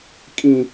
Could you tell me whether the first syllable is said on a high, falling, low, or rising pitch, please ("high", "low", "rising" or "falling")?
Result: low